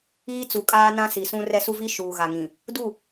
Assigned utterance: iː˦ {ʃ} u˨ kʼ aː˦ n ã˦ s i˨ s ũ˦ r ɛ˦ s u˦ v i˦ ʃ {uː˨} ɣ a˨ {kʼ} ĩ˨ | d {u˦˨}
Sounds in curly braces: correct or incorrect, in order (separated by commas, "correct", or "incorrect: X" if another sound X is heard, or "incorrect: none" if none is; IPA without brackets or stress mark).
incorrect: t͡s, correct, incorrect: ŋ, correct